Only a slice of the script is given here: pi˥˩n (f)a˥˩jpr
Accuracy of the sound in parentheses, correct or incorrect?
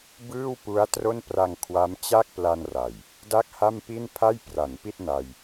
incorrect